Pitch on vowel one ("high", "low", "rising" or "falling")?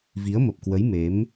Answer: rising